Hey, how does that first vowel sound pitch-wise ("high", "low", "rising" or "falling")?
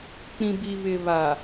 low